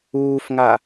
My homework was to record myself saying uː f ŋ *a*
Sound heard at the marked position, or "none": a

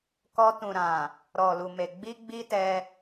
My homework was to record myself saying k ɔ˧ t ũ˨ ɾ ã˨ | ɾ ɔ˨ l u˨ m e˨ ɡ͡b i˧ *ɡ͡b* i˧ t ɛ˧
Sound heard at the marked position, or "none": ɡ͡b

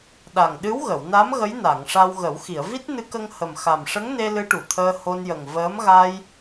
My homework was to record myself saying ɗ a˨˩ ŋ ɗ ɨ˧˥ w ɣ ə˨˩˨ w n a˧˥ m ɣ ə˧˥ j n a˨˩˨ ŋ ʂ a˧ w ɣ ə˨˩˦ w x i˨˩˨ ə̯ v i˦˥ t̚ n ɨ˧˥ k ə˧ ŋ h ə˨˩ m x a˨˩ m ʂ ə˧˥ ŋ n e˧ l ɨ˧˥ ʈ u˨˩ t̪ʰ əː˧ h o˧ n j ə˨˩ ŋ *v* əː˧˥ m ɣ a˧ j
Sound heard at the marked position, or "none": v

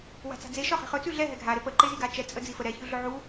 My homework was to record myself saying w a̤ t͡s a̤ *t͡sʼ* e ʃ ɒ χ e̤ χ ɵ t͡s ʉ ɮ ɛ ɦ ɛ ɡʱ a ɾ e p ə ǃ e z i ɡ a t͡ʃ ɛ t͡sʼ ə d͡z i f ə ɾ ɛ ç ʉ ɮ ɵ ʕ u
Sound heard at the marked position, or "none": d͡z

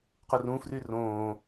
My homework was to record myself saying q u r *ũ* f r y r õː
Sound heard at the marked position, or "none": ũ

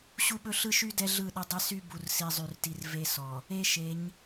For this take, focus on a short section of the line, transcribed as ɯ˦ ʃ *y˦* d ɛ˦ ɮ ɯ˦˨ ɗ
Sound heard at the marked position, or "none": y˦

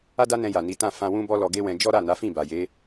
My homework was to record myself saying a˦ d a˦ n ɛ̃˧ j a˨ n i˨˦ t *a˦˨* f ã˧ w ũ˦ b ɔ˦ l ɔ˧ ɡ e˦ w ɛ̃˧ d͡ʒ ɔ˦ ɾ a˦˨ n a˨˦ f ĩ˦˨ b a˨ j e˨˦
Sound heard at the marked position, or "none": ã˦˨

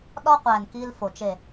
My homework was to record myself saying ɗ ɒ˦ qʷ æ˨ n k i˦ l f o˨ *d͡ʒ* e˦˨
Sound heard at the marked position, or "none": t͡ʃ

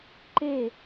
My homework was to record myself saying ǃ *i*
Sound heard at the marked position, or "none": e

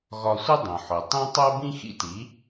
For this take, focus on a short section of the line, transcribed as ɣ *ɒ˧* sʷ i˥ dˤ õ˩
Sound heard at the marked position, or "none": ɒ˧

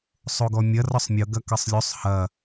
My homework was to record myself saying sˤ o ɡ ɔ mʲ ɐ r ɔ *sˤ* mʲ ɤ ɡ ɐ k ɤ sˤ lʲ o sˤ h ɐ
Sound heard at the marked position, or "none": sˤ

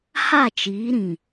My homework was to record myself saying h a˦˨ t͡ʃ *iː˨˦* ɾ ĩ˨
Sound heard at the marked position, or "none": iː˨˦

